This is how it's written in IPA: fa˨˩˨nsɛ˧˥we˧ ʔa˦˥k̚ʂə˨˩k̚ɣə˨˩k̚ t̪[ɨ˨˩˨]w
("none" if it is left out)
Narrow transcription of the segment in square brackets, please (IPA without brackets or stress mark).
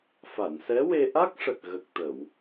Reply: ə˨˩˨